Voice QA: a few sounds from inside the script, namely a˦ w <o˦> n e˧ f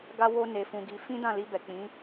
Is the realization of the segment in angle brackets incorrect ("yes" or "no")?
no